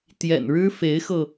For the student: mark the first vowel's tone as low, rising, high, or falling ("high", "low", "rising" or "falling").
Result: low